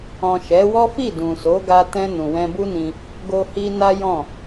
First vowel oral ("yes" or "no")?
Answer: no